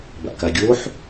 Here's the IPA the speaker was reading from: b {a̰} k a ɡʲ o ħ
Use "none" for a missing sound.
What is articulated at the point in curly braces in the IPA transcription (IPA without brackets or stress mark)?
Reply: a̰